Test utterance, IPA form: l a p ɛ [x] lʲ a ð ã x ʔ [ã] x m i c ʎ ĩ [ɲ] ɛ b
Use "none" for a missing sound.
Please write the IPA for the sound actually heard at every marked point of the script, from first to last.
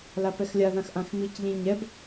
x, ã, ɲ

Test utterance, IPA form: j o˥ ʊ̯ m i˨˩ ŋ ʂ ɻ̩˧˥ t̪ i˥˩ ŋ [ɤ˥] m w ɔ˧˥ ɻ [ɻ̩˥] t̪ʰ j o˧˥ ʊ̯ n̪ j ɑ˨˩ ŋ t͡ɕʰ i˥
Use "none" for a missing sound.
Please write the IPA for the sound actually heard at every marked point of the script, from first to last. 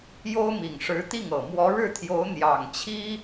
ɤ˨˩, ɻ̩˥˩

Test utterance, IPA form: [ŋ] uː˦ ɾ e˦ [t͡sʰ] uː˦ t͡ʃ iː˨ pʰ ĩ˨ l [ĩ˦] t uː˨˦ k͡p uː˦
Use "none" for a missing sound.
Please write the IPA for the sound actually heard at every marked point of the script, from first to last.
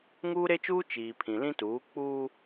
ŋ, t͡ʃ, ĩ˦

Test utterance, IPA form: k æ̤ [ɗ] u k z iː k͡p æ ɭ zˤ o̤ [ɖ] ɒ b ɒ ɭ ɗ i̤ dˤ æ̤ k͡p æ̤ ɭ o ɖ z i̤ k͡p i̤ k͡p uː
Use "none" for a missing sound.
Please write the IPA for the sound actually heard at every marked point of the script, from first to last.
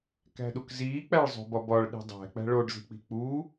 ɗ, b

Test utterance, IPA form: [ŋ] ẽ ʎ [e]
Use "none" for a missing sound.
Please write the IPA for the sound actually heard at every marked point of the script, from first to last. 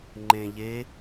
ŋ͡ǃ, e

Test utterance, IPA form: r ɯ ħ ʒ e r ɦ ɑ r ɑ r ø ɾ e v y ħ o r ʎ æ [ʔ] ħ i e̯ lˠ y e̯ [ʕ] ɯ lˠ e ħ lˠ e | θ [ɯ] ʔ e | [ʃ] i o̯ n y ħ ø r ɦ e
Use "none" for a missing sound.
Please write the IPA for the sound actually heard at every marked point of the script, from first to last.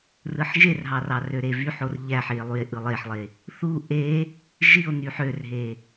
none, ʔ, u, ʒ

